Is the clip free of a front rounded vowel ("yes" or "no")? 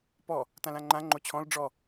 yes